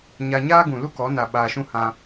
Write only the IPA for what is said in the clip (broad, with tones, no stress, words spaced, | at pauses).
ɲa˧ ɲaː˦ɡũ˨lu˦kɔ˨˦ na˨ ɓaː˧ʃũ˦ hã˧